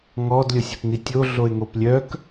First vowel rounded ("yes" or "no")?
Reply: yes